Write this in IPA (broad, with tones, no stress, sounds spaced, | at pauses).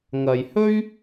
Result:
ŋ ɐ˨ j h ɵ˥ ɥ